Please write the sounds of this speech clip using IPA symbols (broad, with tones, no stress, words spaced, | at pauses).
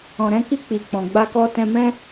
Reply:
ɔ̃˨ɾɛ̃˧ki˧ k͡pi˨k͡pɔ̃˨ɡ͡ba˧kɔ˧ tɛ̃˧mɛ̃˦